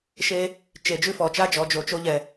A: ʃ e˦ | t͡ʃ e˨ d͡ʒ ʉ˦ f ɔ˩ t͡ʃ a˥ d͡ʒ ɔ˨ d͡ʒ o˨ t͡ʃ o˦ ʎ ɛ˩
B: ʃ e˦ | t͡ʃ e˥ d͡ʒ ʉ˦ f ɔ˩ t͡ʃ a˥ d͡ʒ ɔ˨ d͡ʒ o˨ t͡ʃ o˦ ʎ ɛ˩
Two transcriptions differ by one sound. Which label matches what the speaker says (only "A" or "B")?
A